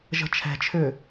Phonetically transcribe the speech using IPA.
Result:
ʒ ə̤ t͡ʃʰ ɛ̤ t͡ʃʰ ʏ

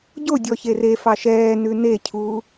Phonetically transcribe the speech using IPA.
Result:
ɟ o dʲ ɔ ç e r e f ɑ ʃ ɛː n ʉ n e cʰ uː

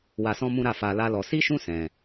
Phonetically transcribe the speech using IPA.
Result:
w a˧ s ɔ̃˦ m ũ˦ ɾ a˦˨ f a˧ l a˦ l ɔ˧ s i˦ ʃ ũ˦ s ɛ̃˧

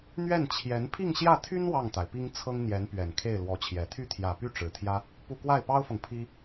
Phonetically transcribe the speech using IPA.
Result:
n̪ ɥ ɛ˥˩ n t͡ɕʰ j ɛ˧˥ n pʰ i˥˧ ŋ ɕ j ä˥˩ t̪ʰ y˥ n w ɑ˥˩ ŋ t̪ a˩ ɪ̯ p i˥ ŋ t͡sʰ ɤ˥ ŋ n̪ j ɛ˧˥ n p ɥ ɛ˨˩ n kʰ e˥˩ ɪ̯ l w ɔ˧˥ t͡ɕʰ j ɛ˨˩ t̪ʰ y˥˩ t̪ʰ j ä˨˩ p y˥˩ ʈ͡ʂ ɻ̩˨˩ t̪ʰ j ä˥ | p u˥˧ k w a˥˩ ɪ̯ p ɑ˥ ʊ̯ f ɤ˨ ŋ pʰ i˥

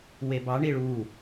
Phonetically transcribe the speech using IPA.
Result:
w e b ɑ ɳ i ɭ u

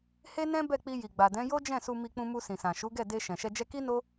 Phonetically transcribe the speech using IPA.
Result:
h e˦ n ɛ̃˦ b ɛ˦˨ k͡p i˧ j i˨ ɡ͡b a˨ d ɛ̃˨˦ j o˦ d͡ʒ ɛ̃˦˨ s u˧ m i˧ k͡p ũ˧ m u˧ s ĩ˨ s ã˨ ʃ u˨˦ ɡ ɛ˦˨ d e˧ ʃ ɛ̃˨ ʃ ɛ˧ d͡ʒ ɛ˦ k i˦ n o˦

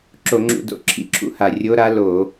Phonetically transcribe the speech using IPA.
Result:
ǁ o˧˩˧ ŋ͡ǁ ṵ˧˩˧ d o̰˨˩ ǁʰ ḭ˧˥ ǁʰ ṵ˧˥ h a˨˩ rʲ o˧˥ ɾ a˧˥ l o˧˩˧

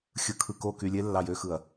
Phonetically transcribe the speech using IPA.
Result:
xʲ ɯ˨ kʰ ɯ˨ k o˦˨ k y˨ lʲ e˧ lː ɑ˨ j ø˦ x ɯ˨ ɐ̯

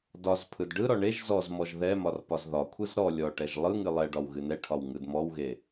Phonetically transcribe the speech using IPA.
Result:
d ɒ z pʰ ɯ d ɖ ɯ ɾ ɔ ɳ e ʒ z ɔ z m ɔ ʒ ð ɛ m ɒ r p ɒ z ð ɒ kʷʰ ɯ z ɾ ɔ lʲ ɔ ʈ ɛ ʒ lˠ ɯ ŋ ɨ lˠ ɛ ɖ ɒ w ɣ ɨ n ɛ ʈʰ ɒ w ŋ ɯ d m ɔ w ɣ e

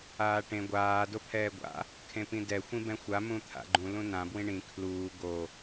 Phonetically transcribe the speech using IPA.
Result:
aː ʈ ẽ ɡʷ aː d o pʰ ɛː ɡʷ a̰ | kʰ ẽ p ĩ d ɛ xʷ ĩ b ɛ̃ xʷ a m ũ t̪ʰ a̰ ɡ͡ǃ ũ l ũ n ã b w ĩ ɳ ĩ kʰ l uː ɡ o

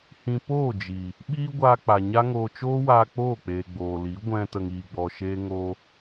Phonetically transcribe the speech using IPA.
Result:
h ĩ˧ p oː˦˨ d͡ʒ i˨ | ɓ iː˦ ɡʷ aː˧ k͡p a˨ ɲ a˦ ŋ oː˧ t͡ʃ oː˦ w aː˧ k͡p oː˦˨ k͡p eː˨ ɡ͡b oː˨ l i˨˦ ɡʷ ɛ̃˧ t ə˧ ŋ iː˧ ɡ͡b ɔ˧ ʃ eː˦ ŋ oː˧

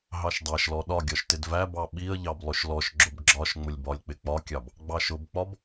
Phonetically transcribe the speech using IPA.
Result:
ɦ ɑ ʃ dˤ æ ʃ l ɔ ɗ ɒ ɡʲ ɒ ʃ t ɪ d v æ b ɑ ɓ i ə̯ ʎ ɑ b lˠ ʊ ʃ l ɔ ʃ ɡ͡ǁ ʊ b ɡ͡ǁ ɒ ʃ ŋ͡m ʊ lʲ b ɒ lʲ k͡p ɪ k͡p ɒ kʲ ɑ b | ɡ͡b ɑ ʃ ʊ b k͡p ɒ b

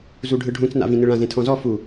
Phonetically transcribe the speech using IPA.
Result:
z u ɖʱ ɯ ɖʱ ũ t͡s n a̰ v ĩ n ɯ ɭ ã z ẽ tʰ ɔ̃ z ɔ f u

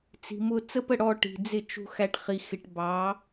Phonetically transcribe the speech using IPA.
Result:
t͡s i̤˨ m ʊː˧ t͡s ə˦ p ə˦˨ ɽ ɔ˧ ʈ i̤˨ d͡z ɪ˦˨ t͡ʃ ṳ˧ x æ˧ ʈ χ i˨ x ɪ˨ ʈ b ɑː˨˦

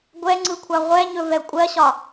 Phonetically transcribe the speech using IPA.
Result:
ɡʷ ɛ ŋ͡ǀ ɯ kʷʰ a ʁʷ ɛ ɲ ɵ v ɛ kʷʼ ɜ ɕ ɒ

